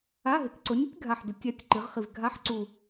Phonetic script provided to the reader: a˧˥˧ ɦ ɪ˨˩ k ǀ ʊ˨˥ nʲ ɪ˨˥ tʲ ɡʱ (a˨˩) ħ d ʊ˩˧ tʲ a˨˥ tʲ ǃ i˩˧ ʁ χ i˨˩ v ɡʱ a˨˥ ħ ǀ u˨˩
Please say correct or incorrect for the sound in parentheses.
correct